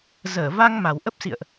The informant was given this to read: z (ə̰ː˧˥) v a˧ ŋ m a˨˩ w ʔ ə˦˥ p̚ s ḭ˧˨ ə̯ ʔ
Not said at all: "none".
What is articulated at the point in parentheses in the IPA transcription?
əː˧˩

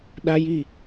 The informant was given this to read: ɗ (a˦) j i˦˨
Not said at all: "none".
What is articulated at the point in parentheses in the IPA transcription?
a˦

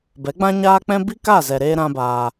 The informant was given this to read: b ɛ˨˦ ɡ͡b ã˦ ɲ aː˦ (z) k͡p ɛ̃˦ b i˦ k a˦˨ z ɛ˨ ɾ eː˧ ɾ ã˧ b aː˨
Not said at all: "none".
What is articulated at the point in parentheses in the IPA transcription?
none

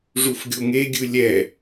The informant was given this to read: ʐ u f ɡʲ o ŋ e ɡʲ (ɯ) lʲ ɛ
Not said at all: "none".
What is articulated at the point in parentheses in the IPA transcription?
ɯ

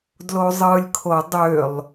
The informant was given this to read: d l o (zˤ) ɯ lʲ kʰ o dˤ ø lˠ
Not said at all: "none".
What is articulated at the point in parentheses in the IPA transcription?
zˤ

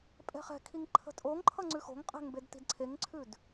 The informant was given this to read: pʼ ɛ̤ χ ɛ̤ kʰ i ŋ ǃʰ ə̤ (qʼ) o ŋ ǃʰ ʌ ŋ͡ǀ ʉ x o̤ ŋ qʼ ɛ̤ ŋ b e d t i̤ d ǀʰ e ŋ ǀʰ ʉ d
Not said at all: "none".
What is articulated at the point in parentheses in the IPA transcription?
tʼ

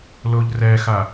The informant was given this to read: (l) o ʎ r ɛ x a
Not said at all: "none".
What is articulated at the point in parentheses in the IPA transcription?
l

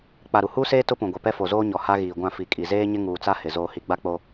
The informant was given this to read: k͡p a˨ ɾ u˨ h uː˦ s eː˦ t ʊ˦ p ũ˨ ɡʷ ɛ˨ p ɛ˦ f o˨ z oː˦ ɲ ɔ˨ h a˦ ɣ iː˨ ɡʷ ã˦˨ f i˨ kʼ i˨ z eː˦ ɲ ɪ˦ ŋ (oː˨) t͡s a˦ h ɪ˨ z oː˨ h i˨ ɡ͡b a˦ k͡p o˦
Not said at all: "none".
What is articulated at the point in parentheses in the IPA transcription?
uː˨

